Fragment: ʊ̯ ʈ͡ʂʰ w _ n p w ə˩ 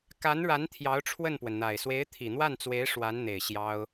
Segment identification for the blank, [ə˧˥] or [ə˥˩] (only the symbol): ə˥˩